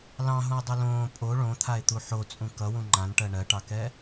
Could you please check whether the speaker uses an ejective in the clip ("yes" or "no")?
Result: yes